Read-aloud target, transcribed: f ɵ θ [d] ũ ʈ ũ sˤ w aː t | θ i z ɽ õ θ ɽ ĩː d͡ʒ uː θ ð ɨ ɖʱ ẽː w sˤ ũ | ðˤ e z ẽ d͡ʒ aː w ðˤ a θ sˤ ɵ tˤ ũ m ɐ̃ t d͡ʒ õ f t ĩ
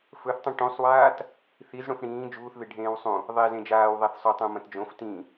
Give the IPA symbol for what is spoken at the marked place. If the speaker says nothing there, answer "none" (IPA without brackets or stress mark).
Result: tˤ